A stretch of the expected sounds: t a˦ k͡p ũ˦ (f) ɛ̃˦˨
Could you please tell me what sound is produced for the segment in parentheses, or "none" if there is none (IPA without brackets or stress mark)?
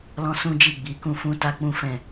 f